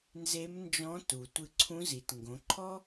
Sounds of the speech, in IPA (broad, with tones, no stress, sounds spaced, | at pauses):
n z e˧˥ m n d͡ʒ ɔ̃˧˥ t u˩ tʷ ɨ˧ ǀʰ ũ˧˥ z i˩˧ t ŋ ɡ õ˩˧ ǃʰ ɔ˥